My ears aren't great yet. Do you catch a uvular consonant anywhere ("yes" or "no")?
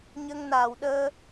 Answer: no